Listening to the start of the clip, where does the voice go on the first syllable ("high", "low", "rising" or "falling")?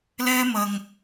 high